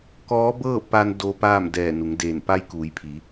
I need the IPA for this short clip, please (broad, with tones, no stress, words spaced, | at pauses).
kɔː˧˥bɤː˥˨pa˧n do˧paː˥˨m dɛː˧˩nu˩˧ŋdeː˧˩n pa˧jkuː˩˧jpʰi˩˧